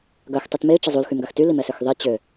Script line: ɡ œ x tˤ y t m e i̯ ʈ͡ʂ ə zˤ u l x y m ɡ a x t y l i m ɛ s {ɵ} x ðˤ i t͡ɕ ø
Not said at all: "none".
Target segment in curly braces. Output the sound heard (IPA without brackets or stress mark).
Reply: ø